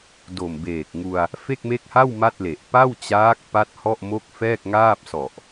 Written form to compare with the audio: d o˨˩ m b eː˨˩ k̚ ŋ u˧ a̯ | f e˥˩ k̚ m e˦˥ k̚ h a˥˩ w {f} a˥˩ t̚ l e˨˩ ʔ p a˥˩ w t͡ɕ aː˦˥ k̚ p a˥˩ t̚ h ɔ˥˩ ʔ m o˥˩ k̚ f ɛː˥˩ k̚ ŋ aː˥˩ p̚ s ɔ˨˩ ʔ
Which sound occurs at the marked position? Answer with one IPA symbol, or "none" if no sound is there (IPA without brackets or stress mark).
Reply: m